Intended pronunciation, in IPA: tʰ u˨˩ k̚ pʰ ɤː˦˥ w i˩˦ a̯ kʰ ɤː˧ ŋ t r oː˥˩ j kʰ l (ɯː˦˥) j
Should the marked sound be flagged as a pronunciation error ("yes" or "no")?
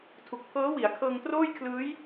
no